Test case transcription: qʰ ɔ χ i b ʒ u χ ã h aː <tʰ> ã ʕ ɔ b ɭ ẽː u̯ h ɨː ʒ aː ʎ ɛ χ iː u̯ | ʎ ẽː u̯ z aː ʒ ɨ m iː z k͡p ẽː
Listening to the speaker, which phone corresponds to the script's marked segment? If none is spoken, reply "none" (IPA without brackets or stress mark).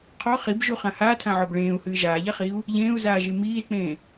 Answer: tʰ